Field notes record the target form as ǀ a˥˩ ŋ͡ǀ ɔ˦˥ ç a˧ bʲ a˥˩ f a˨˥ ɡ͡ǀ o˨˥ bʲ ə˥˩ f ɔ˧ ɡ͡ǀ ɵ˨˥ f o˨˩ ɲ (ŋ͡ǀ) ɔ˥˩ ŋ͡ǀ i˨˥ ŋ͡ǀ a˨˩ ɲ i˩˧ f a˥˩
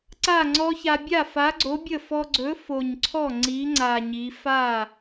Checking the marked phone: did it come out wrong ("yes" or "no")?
yes